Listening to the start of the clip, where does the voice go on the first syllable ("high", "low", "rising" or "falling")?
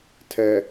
low